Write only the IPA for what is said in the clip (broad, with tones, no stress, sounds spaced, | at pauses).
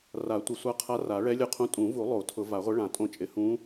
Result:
r a˨˩˦ tʷ ɪ˨˩˦ sʷ a˧˥ qʰ a˧˥ r a˨˩˦ ɭ ɛ˧˥ lʲ ʊ˧˥ qʰ ũ˧˥ tʼ ũ˨˩˦ v u˨˩˦ lˠ o˨˩˦ tʰ ʊ˨˩˦ v a˨˩˦ ʁʷ ɪ˧˥ ɭ ã˨˩˦ tʼ õ˧˥ t͡ʃʼ ɪ˨˩˦ h ũ˧˥